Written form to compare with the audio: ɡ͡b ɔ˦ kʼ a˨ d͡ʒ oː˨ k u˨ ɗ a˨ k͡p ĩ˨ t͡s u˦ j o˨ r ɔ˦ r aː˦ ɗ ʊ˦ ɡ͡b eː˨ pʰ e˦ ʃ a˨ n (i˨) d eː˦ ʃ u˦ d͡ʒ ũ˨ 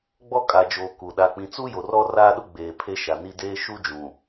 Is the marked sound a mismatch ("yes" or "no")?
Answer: yes